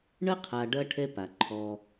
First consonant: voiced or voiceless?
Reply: voiced